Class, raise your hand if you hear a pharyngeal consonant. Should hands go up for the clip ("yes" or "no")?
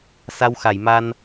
no